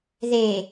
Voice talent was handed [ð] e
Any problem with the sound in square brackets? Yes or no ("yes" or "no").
no